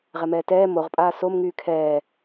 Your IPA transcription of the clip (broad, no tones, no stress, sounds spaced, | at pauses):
ʁ ɛ m ɛː t ɛː m o ʁ pʼ aː s o m ŋ yː kʰ ɛː